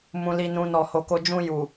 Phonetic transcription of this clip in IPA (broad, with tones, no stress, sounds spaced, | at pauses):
m ũ˨ l i˨ n ũ˨ n ɔ˨ h o˨ k o˧ d͡ʒ ũ˧ j u˨